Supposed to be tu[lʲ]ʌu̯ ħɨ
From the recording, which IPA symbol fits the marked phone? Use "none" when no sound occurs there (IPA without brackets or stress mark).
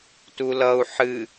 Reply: l